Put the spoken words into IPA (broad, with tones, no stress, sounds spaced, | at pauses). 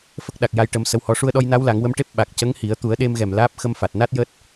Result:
f ə˦˥ k̚ ɗ a˨˩ k̚ j a˧ j ʈ ə˧ m s ə˧˥ w h ɔ˧˥ ʂ u˧ ə̯ ɗ ɔ˧ j n a˧˥ w l a˨˩˦ ŋ w ə˧˥ m ʈ e˦˥ p̚ ɓ a˨˩ k̚ c ə˧˥ ŋ h i˨˩˦ ə̯ t̪ u˨˩˦ ə̯ ɗ e˧ m ɣ ɛ˨˩ m l aː˦˥ p̚ x ə˧ m f a˨˩ t̚ n a˦˥ t̚ j əː˦˥ t̚